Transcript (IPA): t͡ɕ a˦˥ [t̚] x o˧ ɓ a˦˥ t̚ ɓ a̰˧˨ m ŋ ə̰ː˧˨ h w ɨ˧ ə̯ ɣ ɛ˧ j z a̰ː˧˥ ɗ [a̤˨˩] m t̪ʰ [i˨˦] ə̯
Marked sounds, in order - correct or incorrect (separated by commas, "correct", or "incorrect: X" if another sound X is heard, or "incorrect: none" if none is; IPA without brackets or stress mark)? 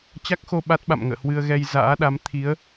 incorrect: k̚, incorrect: a˨˦, correct